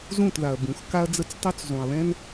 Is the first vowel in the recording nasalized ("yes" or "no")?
yes